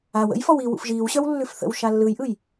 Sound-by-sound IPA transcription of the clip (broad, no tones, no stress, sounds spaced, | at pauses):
a w ə̰ j f ɔ w i w ṵ f ʒ iː w ɕ œ w lː ʉ f θ ə̰ w ʃ a lː ɯ j ʔ ɯ j